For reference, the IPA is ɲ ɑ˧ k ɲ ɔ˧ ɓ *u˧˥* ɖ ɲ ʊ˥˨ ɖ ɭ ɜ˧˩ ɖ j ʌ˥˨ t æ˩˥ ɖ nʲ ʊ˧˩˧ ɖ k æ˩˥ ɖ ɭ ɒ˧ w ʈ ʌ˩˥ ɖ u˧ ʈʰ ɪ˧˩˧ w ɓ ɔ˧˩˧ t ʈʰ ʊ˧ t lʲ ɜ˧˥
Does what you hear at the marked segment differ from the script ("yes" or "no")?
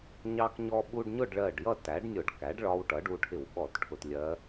yes